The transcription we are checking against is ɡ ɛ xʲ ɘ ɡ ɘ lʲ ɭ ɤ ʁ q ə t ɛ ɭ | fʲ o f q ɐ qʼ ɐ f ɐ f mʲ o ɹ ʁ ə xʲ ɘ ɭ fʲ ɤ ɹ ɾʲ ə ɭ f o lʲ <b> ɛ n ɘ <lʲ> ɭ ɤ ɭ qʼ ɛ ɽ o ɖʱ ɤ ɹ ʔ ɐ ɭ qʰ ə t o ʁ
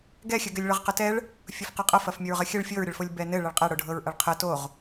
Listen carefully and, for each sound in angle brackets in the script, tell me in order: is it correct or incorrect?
correct, incorrect

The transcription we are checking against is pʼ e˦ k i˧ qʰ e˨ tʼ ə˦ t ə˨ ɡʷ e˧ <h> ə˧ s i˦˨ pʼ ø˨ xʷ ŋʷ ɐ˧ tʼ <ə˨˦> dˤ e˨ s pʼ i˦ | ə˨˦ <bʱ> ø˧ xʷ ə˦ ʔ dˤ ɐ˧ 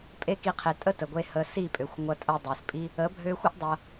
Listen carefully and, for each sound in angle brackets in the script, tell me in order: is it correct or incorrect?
correct, incorrect, correct

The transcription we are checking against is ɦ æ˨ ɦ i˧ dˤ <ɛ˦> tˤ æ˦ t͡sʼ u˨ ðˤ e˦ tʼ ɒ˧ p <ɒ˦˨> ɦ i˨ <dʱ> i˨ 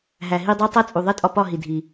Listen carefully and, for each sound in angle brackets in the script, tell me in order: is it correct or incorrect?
incorrect, correct, correct

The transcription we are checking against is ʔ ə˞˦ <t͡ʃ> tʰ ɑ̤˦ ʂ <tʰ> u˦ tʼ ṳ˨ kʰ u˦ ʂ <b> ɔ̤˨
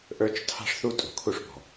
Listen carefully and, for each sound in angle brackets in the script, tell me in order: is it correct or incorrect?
correct, incorrect, correct

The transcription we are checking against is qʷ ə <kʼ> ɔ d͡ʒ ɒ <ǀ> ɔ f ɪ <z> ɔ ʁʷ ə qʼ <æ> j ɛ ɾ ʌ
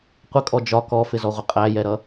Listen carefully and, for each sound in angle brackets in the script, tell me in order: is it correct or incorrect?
correct, incorrect, correct, correct

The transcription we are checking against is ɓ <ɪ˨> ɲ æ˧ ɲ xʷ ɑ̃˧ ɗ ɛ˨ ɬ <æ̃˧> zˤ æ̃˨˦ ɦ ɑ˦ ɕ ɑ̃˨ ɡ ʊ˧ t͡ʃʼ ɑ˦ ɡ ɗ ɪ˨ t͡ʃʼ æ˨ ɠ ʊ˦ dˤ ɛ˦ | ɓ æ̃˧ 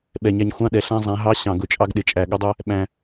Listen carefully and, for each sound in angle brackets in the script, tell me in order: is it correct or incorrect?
incorrect, correct

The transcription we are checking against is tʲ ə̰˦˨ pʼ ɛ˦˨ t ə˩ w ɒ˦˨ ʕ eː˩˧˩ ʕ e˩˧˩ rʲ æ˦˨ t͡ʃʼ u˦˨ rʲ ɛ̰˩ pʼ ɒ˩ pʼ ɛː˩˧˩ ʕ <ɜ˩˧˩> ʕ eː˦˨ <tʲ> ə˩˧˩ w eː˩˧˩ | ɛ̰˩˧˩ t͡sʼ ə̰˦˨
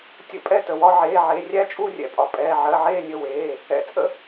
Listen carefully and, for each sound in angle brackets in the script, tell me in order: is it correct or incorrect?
correct, incorrect

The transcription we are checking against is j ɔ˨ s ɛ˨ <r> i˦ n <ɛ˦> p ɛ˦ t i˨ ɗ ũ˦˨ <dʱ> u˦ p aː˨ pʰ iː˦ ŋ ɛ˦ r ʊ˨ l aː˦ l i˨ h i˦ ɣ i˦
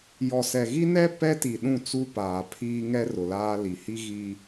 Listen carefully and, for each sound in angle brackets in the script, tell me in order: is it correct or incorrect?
incorrect, correct, incorrect

